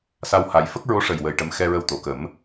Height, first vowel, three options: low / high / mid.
low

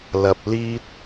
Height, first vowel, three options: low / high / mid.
low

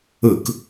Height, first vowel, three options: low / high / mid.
high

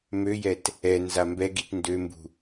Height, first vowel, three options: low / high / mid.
mid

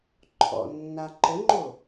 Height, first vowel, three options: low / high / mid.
mid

